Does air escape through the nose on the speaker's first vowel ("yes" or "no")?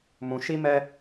yes